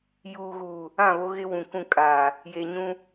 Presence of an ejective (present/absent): present